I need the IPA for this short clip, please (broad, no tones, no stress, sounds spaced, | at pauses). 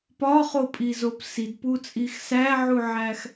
p ɒ χ o pʼ i z o p s i d p u t͡sʼ i x s æ ʕ u ʕ æ x